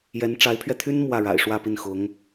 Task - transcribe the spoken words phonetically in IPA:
jɛ˧˥nʈ͡ʂa˧˥ɪ̯pʰɥɛ˧t̪ʰy˥n mwä˥˩ɻa̰˨˩ɪ̯ ʂwä˥˧pi˥˩nxʊ˧˥ŋ

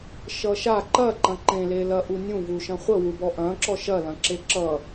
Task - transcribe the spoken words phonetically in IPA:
ʃʌʃa ǃɐǃɐ̃ ǃẽlelɐ ʔunʲũ vuʃɐ̃χʷəwu bɔʔɐ̃ǁɔ ʃɐlɐ̃ ǁeǁʌ

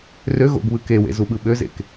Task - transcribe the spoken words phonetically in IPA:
rø ɣo̰ɡβɯ kewḛ zuɓɯɓøzḛk

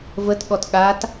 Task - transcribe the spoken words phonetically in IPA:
vətɠɔt ɠat

